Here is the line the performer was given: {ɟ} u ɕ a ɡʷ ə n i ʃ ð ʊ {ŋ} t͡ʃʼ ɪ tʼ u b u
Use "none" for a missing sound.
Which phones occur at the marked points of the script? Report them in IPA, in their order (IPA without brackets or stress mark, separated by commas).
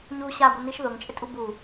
ɲ, ŋ